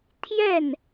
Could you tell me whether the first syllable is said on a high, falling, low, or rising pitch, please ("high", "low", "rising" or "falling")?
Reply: falling